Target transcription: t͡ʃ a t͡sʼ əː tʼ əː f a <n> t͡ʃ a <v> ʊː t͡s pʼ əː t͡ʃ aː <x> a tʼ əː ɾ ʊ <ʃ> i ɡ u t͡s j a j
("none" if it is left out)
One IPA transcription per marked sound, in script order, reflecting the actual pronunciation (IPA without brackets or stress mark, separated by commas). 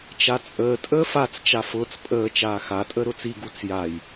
t͡s, f, x, t͡s